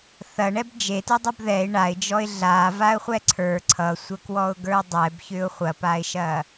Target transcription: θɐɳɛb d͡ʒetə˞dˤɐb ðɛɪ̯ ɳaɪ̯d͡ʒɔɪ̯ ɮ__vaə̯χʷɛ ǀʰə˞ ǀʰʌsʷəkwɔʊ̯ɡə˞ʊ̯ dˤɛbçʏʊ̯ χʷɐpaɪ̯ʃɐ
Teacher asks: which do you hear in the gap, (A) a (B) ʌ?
A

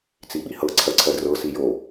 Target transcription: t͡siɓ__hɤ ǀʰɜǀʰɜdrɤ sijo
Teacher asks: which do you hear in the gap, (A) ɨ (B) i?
B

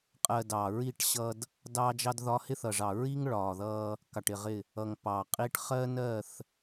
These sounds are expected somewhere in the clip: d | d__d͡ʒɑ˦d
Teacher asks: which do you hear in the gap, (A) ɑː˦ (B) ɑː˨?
A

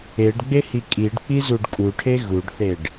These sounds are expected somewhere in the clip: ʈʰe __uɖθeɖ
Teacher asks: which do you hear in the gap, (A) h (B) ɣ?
B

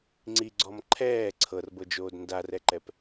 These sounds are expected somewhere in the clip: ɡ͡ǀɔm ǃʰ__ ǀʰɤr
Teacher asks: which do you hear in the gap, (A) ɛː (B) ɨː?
A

